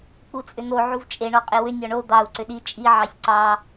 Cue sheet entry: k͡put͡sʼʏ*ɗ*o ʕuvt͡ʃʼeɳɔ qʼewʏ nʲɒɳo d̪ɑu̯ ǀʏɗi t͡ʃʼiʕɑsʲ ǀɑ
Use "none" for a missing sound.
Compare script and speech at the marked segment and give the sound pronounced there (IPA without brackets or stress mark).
n̪